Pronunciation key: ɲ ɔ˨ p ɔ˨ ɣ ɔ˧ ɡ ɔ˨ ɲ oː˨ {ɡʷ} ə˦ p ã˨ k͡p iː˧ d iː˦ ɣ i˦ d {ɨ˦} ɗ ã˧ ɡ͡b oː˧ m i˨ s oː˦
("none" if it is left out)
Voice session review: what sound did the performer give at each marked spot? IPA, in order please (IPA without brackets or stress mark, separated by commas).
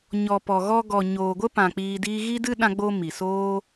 ɡʷ, ɨ˦